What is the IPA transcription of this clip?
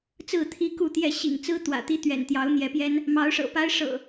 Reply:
t͡s ɹ̩˥˨ t̪ʰ i˦ k u˥˨ t̪ j ɛ˥˨ ɕ ḭ˨˩ ŋ t͡s ɹ̩˦ t̪ w ä̰˨˩ t̪ i˦ t̪ ɥ ɛ̰˨˩ n t̪ j ɑ˨˦ ʊ̯ n̪ j ɛ˨˦ p j ɛ˦ n | m ɑ˨˦ ʊ̯ ʂ ɤ̰˨˩ p a˦ ɪ̯ ʂ ɤ̰˨˩

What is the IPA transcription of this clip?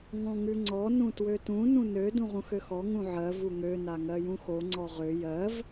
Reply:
ŋ ɔ̃ ŋ ʉ ŋ͡ǀ ɔ n ũ t w ø t ũ n ũ n ø d ũ ʁ ũ x ø x ɔ ŋ ũ ʕ ɜ v u ŋ ø n a ŋ ɜ j ũ x o ŋ͡ǀ ɔ ʁ ø j ɜ v

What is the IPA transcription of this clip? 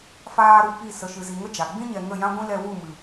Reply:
f aː˦ ɾ u˧ p i˦˨ s ə˨ ʃ ɨ˨ z i˨ ŋ ə˦ d͡ʒ a˨ ɡ͡b ĩ˦ ɲ ɛ˨ ŋ ə˦˨ j ã˦ ɡʷ ĩ˦ l ɛ˧ w u˦˨ m ɨ˨

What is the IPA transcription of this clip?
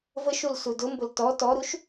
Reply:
v ə ʃ u l s u d ʊ m b ʊ l t ɔ t ɔ ɾ u ʃ

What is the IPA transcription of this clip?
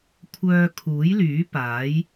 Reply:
kʷʰ œː˧ kʰ uː˨˥ j l yː˨˥ p aː˨˥ j

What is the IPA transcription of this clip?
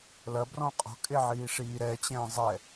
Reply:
l ɐ b r ɔ̃ qʼ ɔ̤ kʼ e ʕ iː ʂ iː ɾ ɛ t͡ɕ ɛ̃ː zˤ ɛ

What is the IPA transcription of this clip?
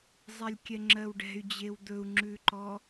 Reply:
zˤ ɛ lʲ kʲ ɛ ŋ͡ǁ ɜ w ɖ ɛ̤ y̯ d͡ʑ e w d̪ ɵ u̯ ŋ͡ǁ ʉ ǃ ɔ

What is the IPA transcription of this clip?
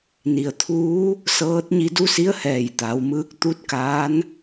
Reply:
n i˩ ə̯ t̪ʰ uː˧˥ | s ɤː˧˥ t̚ ɲ i˧ d u˧˥ s i˧˥ ə̯ h ɛː˧˩ j t̪ a˩˧ w m ɯː˧˥ k̚ t̪ u˧˥ t̚ k aː˧˥ n

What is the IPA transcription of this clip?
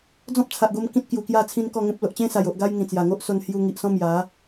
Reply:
d͡z ɔ̃˦ p̚ t͡sʰ a˨ ʔ ɡ o˧ m k ĩ˦ t̚ k j u˨˩ k j a˥˧ t͡sʰ ĩ˦ n k ɔ˥˧ ŋ ẽ˦ p̚ l o˨ ʔ t͡ɕ ẽ˦ s a˨˩ j o˨ ʔ ɡ a˦ j ŋ ĩ˨˩ t͡s j a˨˩ ŋ o˦ ʔ s o˧ n h j u˧ ŋ i˨ ʔ s ɔ̃˦ m j a˨˦

